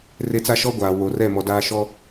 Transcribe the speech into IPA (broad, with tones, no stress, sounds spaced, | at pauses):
r e˦ t͡s a˦ ʃ ɔ˦ ɡʷ aː˨ w o˨ r ɛ˦˨ m ɔ˨ d aː˦ ʃ ɔ˦